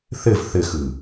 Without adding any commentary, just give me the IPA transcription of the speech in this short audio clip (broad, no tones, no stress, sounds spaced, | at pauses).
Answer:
θ ɘ v θ ɘ x ɯ